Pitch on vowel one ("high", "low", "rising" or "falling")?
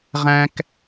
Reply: high